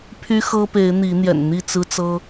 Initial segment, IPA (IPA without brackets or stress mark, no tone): pʰ